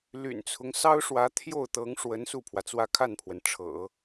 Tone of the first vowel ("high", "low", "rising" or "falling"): low